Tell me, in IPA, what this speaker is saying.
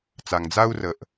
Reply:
t͡s a˩ ŋ d͡z a˥ u̯ r ə˩ ʔ

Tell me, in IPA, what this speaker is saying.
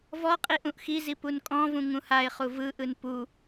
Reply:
v ɔ qʼ i ʔ ũ ʔ x i z i p u n kʼ ɔ̃ v ũ ŋ ũ h a ɪ̯ χ u v ɯ ʔ ɯ n p u

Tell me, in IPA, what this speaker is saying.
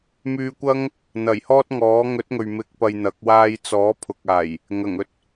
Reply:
m yː˧ kʷ ɐ˥ ŋ | n̪ ɐ˨˩ j h ɔː˥ t̚ ŋ ɔː˨˥ ŋ ɵ˨˥ t̚ ŋ ɵ˨ ɥ m ɪ˧ k̚ p ɐ˧ j n̪ ɐ˨˥ k̚ w aː˧ j t͡s ɔː˨˥ pʰ ʊ˨ k̚ aː˨˩ j | ŋ ɐ˨˩ ŋ ɵ˧ t̚

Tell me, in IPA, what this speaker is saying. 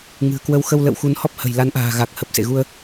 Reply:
ŋ ɨ̤˨˩ ə̯ k w ə˨˦ w x ə˧ w l ə̰˧˨ w x u˨˦ n h ɔ˦˥ p̚ h ə̤˨˩ j l a˨˦ n ʔ a̤ː˨˩ ɣ a˨˩ k̚ h ə˨˩ p̚ s ḛ˧˨ ɣ u˧ ə̯

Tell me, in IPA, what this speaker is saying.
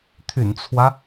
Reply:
t̪ʰ y̰˨˩ n t͡sʰ w ä˦

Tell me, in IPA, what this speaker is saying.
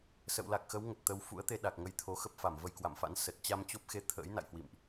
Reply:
s ə̰˧˨ w l a˨˩ k̚ x ə˨˦ w ŋ ə˨˩ t̚ t̪ ə˨˦ w f ṵ˧˥ ə̯ t̪ e˧ ɗ a˨˩ k̚ ŋ ə˨˦ j t̪ʰ o˨˦ x ə˦˥ p̚ f a˧˩ m v ə˧ j k w a̰˧˨ m f a̰˧˥ n s ə˨˩ t̚ t͡ɕ a˧ m t͡ɕ o˦˥ p̚ x e˧ t̪ʰ ə̰ː˧˥ j n a̰˧˨ j h w ḭ˧˨ m ʔ

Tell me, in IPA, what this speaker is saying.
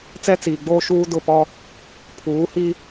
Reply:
t͡s ɛ˦ t͡s iː˨ ɡ͡b oː˦ ʃ uː˦ d ʊ˦˨ p ɔ˦ | pʰ uː˨˦ h i˦

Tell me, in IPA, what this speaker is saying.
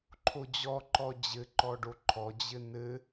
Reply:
ǃʰ o d͡ʑ ɔ ǃ ɔ d͡ʑ ɘ ǃ ɔ ɖ o ǃʰ ɔ d͡ʑ ɘ n ɘ

